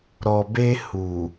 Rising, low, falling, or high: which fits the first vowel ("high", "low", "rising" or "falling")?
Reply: low